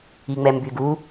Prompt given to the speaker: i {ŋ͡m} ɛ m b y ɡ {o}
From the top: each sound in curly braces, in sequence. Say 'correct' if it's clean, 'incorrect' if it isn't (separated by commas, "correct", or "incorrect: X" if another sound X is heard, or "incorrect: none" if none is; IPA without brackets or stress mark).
correct, incorrect: u